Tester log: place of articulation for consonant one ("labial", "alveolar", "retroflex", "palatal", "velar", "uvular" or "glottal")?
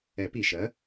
labial